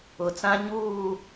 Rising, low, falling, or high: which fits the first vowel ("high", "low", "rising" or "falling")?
low